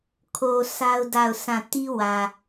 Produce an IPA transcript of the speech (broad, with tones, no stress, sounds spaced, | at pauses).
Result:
kʰ o˨ sʰ a˦ ʊ̯ d a˦˨ ʊ̯ sʰ ã˦˨ t i˦ w ä˨